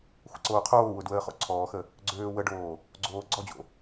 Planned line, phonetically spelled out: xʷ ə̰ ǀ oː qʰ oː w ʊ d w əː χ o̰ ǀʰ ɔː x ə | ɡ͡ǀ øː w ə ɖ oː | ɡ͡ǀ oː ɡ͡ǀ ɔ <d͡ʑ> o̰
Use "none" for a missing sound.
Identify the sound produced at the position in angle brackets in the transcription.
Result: d͡ʑ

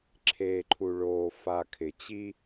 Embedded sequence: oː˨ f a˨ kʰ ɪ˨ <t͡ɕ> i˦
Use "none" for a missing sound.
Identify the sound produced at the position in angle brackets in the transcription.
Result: t͡ɕ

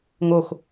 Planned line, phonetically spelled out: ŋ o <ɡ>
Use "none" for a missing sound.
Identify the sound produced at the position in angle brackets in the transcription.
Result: x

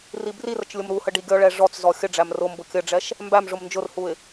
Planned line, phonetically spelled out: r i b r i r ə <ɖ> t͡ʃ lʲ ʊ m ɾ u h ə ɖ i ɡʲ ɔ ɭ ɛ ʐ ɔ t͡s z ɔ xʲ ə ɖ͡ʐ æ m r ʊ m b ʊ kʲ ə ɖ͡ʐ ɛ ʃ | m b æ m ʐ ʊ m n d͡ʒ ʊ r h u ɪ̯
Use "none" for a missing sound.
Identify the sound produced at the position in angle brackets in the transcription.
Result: none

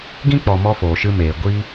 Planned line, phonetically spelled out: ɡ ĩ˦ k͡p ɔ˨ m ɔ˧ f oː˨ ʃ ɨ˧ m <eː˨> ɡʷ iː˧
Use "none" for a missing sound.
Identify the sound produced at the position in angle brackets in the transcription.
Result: eː˨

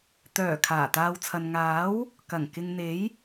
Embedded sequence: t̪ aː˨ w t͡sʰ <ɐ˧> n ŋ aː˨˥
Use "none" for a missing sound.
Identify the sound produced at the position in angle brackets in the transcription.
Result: ɐ˨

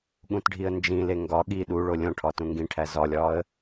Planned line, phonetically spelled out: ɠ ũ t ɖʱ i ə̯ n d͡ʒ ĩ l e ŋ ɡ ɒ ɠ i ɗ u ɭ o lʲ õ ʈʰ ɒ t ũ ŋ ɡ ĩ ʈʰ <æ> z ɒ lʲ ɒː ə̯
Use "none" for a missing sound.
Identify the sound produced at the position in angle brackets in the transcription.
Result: æ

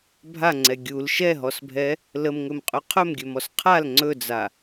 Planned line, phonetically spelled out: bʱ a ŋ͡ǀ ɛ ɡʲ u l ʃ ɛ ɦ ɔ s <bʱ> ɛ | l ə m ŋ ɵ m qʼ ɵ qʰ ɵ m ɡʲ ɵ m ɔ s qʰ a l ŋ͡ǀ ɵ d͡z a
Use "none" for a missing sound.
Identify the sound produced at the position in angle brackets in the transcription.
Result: bʱ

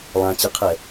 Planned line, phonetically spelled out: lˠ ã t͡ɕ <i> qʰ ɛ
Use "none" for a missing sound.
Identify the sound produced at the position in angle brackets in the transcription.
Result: ɨ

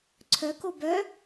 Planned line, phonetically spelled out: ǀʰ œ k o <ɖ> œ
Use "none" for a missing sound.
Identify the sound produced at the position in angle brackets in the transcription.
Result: b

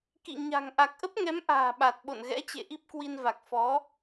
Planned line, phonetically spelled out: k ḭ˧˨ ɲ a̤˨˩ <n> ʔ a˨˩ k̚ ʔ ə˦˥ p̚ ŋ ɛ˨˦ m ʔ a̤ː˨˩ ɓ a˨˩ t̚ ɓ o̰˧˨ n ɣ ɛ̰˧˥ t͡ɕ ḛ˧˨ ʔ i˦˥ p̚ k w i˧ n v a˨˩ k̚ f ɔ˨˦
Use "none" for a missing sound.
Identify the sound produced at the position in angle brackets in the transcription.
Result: ŋ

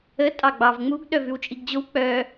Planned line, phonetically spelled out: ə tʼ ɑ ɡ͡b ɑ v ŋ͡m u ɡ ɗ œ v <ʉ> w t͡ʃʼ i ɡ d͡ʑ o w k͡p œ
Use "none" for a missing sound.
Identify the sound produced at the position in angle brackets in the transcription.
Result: ʉ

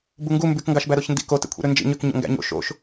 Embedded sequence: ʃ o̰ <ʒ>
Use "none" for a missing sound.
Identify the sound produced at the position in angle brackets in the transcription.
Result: ʃ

